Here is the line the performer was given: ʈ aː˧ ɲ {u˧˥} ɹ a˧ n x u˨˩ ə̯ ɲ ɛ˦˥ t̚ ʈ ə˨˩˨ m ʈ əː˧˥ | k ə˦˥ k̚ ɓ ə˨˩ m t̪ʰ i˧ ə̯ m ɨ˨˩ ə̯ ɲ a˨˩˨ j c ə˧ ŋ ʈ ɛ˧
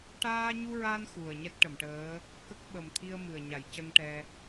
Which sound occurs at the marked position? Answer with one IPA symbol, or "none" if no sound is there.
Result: u˧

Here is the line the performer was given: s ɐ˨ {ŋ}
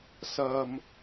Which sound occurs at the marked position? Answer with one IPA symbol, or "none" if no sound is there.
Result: m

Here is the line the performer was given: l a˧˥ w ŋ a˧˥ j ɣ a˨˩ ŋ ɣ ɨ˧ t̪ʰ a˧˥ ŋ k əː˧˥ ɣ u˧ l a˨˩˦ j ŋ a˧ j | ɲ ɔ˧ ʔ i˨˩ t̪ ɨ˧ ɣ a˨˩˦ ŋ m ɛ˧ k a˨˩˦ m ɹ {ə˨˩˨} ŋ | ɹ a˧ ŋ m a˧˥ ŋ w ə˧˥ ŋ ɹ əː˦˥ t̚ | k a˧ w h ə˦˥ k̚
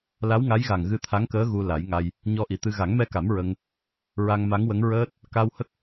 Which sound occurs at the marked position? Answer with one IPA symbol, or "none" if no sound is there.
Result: ə˧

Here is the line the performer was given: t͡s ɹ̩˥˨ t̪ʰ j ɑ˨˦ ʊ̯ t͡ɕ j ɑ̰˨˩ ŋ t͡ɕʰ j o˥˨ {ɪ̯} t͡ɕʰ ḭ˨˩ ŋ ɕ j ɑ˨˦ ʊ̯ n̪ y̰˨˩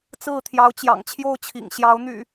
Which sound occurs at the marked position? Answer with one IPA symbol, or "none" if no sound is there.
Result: ʊ̯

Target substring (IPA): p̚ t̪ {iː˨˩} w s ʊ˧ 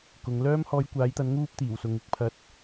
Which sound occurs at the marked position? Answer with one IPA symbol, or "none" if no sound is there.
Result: iː˨˩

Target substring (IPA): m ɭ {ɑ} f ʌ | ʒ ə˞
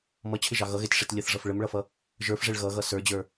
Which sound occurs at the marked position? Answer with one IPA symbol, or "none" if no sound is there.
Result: ʌ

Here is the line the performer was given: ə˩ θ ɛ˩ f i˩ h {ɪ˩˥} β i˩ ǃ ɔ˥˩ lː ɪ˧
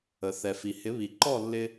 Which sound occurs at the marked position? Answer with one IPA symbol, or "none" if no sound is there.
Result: ɪ˩˥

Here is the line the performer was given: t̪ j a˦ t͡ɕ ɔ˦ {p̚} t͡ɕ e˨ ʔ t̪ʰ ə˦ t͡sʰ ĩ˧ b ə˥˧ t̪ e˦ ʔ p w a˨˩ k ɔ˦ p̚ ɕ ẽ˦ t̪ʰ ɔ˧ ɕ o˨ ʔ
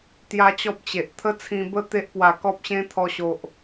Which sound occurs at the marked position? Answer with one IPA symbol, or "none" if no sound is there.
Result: p̚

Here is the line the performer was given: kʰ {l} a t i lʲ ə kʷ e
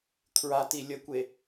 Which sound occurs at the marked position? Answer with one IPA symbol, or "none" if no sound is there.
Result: ɹ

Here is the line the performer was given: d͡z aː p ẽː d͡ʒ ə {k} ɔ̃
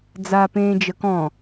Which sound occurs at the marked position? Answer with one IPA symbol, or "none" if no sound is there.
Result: k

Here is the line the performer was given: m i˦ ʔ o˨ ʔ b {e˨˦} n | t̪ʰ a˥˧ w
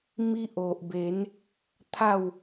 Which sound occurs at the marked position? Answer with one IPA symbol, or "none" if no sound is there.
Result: e˨˦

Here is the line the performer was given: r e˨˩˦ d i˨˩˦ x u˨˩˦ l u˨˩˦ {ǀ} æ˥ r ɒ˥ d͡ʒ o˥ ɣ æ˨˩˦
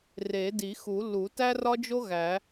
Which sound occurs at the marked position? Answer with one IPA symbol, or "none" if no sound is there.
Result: t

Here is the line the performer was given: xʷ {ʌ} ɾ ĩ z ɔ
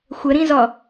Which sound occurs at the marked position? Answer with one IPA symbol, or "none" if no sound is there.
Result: ə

